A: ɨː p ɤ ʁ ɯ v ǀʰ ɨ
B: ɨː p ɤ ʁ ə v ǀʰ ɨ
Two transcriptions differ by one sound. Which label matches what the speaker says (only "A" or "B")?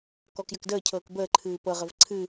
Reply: B